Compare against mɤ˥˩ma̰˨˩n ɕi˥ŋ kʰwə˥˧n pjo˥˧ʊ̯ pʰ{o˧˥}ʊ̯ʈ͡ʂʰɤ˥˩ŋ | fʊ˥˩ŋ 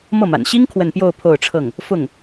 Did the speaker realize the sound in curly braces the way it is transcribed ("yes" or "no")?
no